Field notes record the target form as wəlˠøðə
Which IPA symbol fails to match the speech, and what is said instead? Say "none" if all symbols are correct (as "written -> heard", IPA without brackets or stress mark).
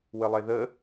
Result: ø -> e